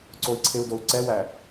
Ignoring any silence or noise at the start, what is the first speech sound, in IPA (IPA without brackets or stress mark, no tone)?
ǀ